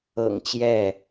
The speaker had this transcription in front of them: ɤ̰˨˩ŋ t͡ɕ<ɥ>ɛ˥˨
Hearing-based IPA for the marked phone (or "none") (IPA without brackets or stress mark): j